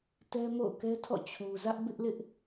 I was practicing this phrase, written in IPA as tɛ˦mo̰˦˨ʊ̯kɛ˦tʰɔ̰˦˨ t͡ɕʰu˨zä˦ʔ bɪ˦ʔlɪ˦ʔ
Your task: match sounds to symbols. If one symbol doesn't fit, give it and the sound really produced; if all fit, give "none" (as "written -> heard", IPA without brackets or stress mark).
none